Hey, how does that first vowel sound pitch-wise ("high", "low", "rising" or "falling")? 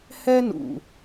high